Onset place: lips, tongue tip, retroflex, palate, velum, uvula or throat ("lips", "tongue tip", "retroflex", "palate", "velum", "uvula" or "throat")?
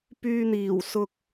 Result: lips